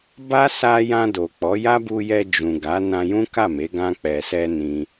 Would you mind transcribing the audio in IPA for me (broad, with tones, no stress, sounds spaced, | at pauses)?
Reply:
b a˦ s a˧ j ã˧ d o˨ k͡p ɔ˨˦ j a˦ b u˧ j ɛ˧ d͡ʒ ũ˨ ɡ a˨˦ n ã˧ j ũ˦ k a˦˨ m e˨˦ ɡ ã˧ k͡p ɛ˨ s ɛ˧ n ĩ˦